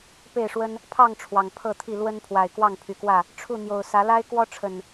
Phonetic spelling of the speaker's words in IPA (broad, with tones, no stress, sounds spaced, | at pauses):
p e˥˨ ɪ̯ ʂ w ə˦ n | pʰ ɑ˥˨ ŋ ʈ͡ʂʰ w ɑ˨˩ ŋ pʰ ɤ˥˨ t̪ʰ i˥˨ l w ə˦ n pʰ w a˨˩ ɪ̯ k w ɑ˥˨ ŋ pʰ y˨˩ k w ä˥˨ | ʈ͡ʂʰ u˥˨ n̪ j o˨˩ ʊ̯ s ä˨˦ l a˦ ɪ̯ k w ɔ˦ ʈ͡ʂʰ ə˨˩ n